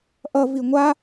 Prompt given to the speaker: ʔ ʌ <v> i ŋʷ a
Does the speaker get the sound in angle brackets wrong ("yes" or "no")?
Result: no